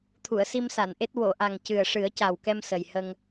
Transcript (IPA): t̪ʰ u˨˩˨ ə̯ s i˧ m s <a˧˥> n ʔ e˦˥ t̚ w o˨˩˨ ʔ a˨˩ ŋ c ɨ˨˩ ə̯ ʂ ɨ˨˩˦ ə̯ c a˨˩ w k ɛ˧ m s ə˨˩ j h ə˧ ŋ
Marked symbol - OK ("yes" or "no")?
no